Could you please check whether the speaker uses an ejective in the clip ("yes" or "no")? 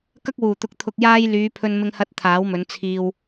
no